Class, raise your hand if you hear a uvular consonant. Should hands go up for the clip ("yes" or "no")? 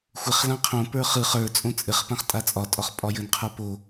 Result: yes